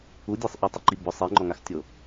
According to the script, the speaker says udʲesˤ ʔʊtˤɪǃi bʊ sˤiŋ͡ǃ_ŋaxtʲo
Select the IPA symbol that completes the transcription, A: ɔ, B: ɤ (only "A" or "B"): A